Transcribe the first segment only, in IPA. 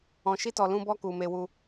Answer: ɔ̃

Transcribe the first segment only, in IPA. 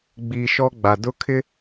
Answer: ɡ͡b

